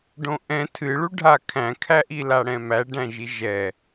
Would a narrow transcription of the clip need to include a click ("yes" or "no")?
no